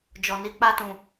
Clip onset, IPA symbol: d͡ʒ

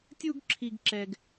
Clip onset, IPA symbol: tʲ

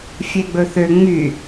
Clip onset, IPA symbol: fʲ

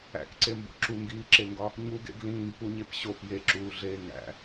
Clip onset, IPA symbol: æ̰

